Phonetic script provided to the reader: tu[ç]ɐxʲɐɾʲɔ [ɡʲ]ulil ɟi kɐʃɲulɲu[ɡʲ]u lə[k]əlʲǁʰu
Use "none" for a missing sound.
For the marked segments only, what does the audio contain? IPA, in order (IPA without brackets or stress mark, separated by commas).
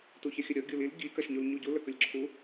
ç, ɡʲ, ɟ, k